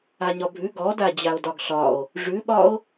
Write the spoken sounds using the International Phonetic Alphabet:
aɲɒbʱʉ ɡɔda d͡ʑao̯dɒɡɬɒo̯ | ʐʉɓɒo̯

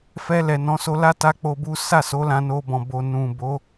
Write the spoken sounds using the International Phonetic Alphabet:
fɛ˧lɛ˨nɔ̃˨˦so˧ la˦ ta˧ k͡po˧bu˦ sa˦˨so˨˦ lã˧no˧bɔ̃˨ bo˨ nũ˨bo˨˦

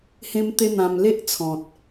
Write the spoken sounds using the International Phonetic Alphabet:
hẽ˦mt̪e˦n̪ã˧m le˦ʔt͡sʰɔ̃˨t̚

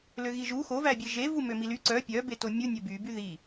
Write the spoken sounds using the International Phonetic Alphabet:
løɣiʒu xovæbʲe ʒevu mømily ǀœ pʲœ betomʲu nʲœby byði

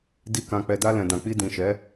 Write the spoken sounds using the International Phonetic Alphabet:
di˨ kã˨k͡pɛ˨da˧ lɛ̃˨dã˨k͡pi˧ dĩ˨ʃɛ˨˦

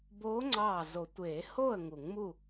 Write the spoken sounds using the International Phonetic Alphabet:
boː˧˥ŋ͡ǀɑː˧˩ zo˨˩˦tʷeː˨˩˦ hoː˥˨ə̯ ŋu˨˩˦ŋmu˥˨

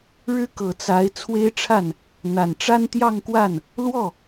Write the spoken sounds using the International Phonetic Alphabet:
ɻɻ̩˥kɤ˨˩ t͡sa˧˥ɪ̯ t͡sʰwe˥ɪ̯ʈ͡ʂʰa˥˩n | n̪a˨˩nʈ͡ʂa˥nt̪jɑ˥˧ŋkwa˥˩n | lwɔ˥˩

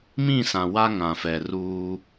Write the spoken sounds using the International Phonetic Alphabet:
mĩ˦˨sã˨ wa˦ŋã˨fɛ˨ ruː˦

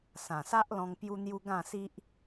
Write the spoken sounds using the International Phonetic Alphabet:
sã˨˩sa˦ʔlɔ̃˧ŋ pju˧n̪ju˧ ɡã˥˧si˦ʔ

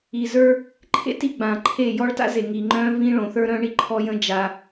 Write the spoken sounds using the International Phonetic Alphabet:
i˨zə˞˦ | ǃʰḛ˦ti˨ɡ͡bã˨ǃʰe˦˨ jɔ˦ɭta̰˦ze˨ ŋi˨ŋ͡ǃœ̃˦vĩ˦ ɭõ˨˦θə˞˦ɾœ̃˦ɳi˦ ǃʰɔ˦jə̃˦ d͡ʒa˦

